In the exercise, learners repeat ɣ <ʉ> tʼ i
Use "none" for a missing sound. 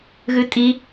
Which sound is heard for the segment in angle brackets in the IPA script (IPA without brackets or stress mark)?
ʉ